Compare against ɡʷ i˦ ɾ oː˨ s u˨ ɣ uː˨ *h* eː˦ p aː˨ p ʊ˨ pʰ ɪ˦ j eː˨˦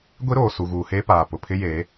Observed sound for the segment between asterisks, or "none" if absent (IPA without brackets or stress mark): h